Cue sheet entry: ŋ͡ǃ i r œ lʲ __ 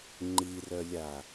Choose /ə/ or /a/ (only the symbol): a